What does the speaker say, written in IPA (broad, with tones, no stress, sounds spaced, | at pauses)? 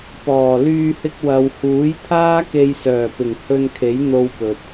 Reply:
p ɔː˨˩ l yː˧ h ɪ˧ k̚ w ɐ˨ w h uː˨˥ j t̪ʰ aː˥ k e˧ j s œː˨˩ p ɪ˨˩ ŋ h ɵ˧ n kʰ e˨˥ j n̪ o˧ w p ɵ˨ t̚